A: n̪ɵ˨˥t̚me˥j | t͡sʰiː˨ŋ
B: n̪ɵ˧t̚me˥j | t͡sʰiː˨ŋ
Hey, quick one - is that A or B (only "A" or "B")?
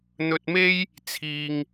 B